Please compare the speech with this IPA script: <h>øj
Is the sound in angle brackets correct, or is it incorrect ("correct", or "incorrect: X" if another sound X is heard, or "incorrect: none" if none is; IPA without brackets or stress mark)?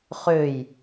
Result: incorrect: χ